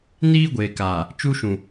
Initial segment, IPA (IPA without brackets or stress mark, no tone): n